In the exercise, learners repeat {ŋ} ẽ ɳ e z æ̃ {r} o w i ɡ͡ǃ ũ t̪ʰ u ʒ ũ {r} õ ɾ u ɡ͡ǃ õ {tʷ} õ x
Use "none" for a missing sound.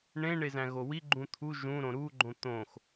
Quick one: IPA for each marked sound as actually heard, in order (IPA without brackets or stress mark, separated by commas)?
ɳ, ɣ, ɾ, t̪